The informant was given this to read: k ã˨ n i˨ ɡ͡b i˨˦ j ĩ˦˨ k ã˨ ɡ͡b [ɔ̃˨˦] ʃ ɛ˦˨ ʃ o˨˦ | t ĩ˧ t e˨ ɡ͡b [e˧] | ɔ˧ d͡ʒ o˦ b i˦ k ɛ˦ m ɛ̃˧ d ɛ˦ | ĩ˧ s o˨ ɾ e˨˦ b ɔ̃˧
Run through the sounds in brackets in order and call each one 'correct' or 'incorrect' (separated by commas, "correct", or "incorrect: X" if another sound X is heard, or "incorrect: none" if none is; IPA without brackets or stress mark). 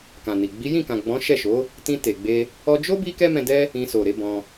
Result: correct, correct